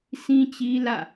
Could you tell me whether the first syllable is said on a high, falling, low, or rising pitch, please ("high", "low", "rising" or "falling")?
high